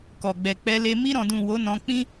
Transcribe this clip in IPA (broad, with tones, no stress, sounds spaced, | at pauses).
k ɔ˨ ɡ͡b ɛ˨ k͡p ɛ˧ l e˧ m i˧ ɾ ɔ̃˨ d ũ˨ w o˨˦ n ɔ̃˧ k͡p ĩ˦